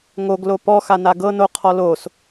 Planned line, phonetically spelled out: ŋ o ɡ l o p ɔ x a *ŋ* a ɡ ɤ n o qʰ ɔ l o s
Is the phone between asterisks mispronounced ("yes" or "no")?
yes